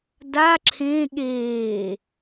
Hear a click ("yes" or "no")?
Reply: yes